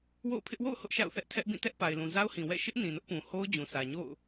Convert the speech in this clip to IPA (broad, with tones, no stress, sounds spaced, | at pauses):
w o̰˦˨ ʊ̯ pʰ ɪ˦ ʔ w o̰˦˨ ʊ̯ h ʊ˦ ʔ ʃ a̰˦˨ ʊ̯ θ ɛ˦ ʔ tʰ ɛ˦ ʔ b ĩ˦˨ t ɛ˦ ʔ p a˨ ɪ̯ l ũ˨ z a˦ ʊ̯ h ĩ˨ w ɛ̰˦˨ ʃ ɪ˦ ʔ n ĩ˨ n ʊ˦ ʔ p ũ˨ h o˦ ʊ̯ d͡ʑ ũ˨ s ä˨ ɲ o̰˦˨ ʊ̯